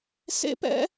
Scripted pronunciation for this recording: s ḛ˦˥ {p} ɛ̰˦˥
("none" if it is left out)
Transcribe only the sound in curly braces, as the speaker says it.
p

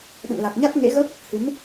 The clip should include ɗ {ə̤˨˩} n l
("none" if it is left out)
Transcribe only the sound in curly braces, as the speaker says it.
ə̰˧˨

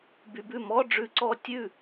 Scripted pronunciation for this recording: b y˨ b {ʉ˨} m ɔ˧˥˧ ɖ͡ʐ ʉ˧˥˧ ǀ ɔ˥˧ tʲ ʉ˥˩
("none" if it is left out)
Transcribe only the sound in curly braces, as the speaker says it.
ʉ˥˩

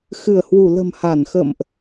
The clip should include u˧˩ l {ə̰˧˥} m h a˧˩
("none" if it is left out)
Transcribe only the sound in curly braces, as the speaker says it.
ə̤˨˩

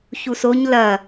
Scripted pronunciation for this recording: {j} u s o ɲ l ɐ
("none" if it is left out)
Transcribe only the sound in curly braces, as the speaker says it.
ç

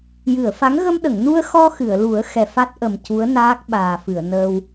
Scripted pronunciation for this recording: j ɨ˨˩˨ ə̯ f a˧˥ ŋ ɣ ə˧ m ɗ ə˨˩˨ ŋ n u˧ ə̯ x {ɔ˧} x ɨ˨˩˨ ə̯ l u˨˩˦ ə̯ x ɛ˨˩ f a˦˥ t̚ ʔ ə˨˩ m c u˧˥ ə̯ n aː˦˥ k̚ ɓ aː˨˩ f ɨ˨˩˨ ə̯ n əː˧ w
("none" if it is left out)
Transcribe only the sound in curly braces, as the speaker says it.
ɔ˧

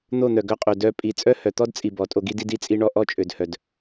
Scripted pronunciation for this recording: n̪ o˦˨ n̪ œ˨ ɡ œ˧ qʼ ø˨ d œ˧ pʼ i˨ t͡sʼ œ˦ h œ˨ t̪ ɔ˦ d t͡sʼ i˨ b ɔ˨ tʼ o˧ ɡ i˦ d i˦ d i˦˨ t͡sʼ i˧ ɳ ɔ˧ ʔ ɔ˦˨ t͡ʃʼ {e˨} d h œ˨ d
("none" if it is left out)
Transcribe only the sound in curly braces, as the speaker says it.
ø˨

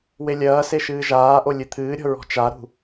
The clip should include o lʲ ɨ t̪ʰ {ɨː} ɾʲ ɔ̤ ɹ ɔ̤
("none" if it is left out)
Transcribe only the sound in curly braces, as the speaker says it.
ɨː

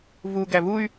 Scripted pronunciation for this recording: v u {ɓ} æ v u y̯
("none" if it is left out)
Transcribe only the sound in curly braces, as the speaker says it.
ɡ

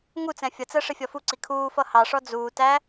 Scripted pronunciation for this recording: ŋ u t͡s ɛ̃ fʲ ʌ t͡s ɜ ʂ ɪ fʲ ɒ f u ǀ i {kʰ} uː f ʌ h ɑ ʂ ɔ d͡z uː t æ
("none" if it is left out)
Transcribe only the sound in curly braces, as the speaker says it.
kʰ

